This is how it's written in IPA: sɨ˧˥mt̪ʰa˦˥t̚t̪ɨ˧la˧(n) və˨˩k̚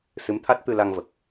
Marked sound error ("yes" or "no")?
yes